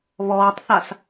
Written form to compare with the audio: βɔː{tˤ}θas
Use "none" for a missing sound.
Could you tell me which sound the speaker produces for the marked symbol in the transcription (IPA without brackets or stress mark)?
tˤ